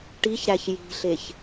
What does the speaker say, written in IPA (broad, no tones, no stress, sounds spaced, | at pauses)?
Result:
ʈ i ç ɾ æ ç j i̤ ɬ e ç